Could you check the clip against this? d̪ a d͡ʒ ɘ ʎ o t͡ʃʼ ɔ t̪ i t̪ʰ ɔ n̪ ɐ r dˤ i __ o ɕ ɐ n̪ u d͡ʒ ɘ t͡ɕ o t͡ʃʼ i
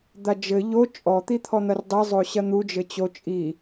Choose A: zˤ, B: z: A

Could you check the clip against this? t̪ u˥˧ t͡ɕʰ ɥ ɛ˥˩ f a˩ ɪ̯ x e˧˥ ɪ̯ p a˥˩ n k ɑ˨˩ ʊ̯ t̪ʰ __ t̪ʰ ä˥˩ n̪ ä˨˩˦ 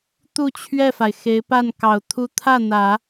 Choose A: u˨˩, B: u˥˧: B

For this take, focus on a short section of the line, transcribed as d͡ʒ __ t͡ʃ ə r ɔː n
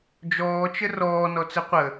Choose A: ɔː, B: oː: A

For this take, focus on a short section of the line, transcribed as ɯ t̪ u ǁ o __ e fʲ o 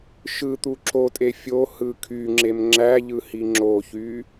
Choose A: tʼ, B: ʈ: A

